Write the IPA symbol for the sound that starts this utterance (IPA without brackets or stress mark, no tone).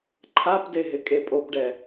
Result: ǃʰ